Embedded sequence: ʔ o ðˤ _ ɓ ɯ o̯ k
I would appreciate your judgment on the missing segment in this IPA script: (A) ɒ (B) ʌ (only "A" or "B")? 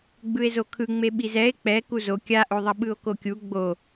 B